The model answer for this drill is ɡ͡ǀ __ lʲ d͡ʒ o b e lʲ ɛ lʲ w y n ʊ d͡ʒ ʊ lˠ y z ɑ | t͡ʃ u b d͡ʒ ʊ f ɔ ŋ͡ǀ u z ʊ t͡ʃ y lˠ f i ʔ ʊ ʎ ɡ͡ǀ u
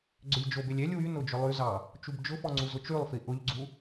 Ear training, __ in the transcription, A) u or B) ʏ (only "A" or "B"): B